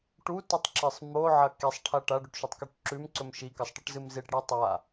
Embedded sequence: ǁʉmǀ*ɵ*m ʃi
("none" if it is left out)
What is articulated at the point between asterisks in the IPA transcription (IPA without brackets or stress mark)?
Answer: ɵ